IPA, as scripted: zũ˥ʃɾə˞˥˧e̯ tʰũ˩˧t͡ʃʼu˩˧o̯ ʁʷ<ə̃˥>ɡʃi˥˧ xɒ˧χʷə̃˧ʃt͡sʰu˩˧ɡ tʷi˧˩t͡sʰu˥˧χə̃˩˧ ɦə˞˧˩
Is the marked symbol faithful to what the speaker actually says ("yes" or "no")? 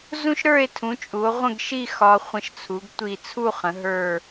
no